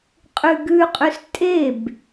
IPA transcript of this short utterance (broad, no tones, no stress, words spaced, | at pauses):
qʼʉɡʉqʼʉs tʼeb